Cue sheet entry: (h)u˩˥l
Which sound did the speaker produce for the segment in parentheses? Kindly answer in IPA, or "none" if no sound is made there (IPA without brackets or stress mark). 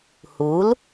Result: h